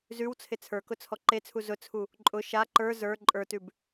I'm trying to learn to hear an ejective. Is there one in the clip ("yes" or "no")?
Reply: yes